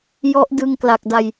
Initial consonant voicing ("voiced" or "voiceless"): voiced